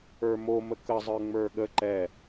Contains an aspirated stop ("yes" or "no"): no